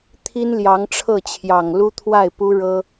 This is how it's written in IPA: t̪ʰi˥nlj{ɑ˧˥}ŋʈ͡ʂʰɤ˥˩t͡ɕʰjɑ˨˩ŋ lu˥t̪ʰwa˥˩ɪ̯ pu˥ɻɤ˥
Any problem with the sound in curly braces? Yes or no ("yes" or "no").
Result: no